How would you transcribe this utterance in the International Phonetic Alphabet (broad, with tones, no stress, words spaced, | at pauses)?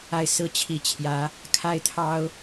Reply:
a˥˧ɪ̯ sɹ̩˥˩t͡ɕʰi˧˥ t͡ɕʰjä˧˥ | kʰa˥ɪ̯t̪ʰɑ˥ʊ̯